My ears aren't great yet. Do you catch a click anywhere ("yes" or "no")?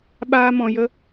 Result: no